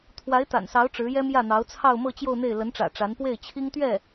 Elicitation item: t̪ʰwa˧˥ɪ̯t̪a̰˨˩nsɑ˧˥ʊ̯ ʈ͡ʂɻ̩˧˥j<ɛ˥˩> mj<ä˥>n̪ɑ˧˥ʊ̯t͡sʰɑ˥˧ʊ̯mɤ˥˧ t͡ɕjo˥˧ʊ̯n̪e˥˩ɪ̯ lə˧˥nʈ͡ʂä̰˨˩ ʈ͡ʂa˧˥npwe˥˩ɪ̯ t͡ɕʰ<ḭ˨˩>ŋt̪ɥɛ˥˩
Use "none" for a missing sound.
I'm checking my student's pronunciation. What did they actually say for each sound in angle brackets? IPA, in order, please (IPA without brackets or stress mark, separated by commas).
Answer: ɛ˥, ä˥˩, i˥